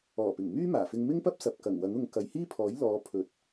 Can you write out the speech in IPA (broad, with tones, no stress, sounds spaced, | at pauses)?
ɔː˨˩ p ɪ˨˩ ŋ m yː˥ m aː˨˩ f ɪ˧ ŋ m ɪ˥ ŋ p ɐ˥ p̚ s ɐ˨ p̚ k ɐ˨˩ ŋ w ɐ˨˥ ŋ ʊ˨˧ ŋ k ɐ˨˧ j h iː˥ pʰ ɔː˨˥ j l ɔː˨˧ pʰ ɵ˨˥ t̚